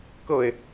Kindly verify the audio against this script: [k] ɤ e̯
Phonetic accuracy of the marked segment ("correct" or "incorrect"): correct